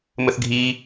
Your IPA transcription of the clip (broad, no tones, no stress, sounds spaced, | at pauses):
m ə θ ɡʱ i